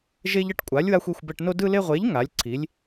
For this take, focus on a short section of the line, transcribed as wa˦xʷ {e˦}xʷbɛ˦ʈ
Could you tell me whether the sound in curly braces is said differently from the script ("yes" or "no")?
no